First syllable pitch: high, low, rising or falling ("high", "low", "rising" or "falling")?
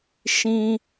high